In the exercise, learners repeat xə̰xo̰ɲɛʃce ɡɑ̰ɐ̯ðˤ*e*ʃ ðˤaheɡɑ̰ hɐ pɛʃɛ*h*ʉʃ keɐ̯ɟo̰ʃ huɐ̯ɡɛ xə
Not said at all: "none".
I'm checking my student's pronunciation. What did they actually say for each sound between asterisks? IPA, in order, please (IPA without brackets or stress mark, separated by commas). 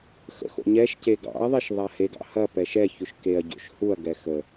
e, ç